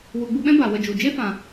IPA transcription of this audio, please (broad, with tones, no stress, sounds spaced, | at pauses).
w u˨ ɡ͡b u˧ ɓ ɛ̃˦ b a˨ w ə˧ d͡ʒ u˨ d͡ʒ e˦ f ã˨